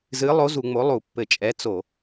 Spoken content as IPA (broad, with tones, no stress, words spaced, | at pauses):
zɨ˩˥lˠo˩˥ zu˧˩˧ŋ͡mo˩˥ lˠu˧˩˧pːɘ˧˩˧t͡ʃʼɛ˩˥ t͡so˧˩˧